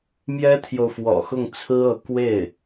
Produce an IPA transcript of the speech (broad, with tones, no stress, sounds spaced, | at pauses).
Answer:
m j ɛ˥ t̪ʰ j o˨ ʊ̯ f w ɔ̰˨˩ x ʊ˥˩ ŋ t͡sʰ ɹ̩˥ ɤ˧˥ k w e˥˩ ɪ̯